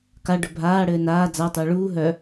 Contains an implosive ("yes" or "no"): no